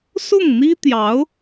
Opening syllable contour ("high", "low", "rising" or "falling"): falling